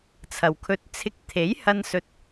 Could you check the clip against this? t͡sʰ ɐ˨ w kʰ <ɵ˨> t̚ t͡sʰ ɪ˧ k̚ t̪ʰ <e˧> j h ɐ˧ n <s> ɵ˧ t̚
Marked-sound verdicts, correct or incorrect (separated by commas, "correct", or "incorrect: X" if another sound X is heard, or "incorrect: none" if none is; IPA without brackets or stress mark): incorrect: ɵ˧, incorrect: e˨˥, correct